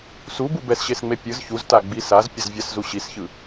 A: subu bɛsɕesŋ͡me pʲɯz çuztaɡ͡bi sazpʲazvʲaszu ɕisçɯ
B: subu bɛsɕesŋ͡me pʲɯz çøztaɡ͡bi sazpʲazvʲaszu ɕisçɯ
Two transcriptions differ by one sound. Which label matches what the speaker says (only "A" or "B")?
A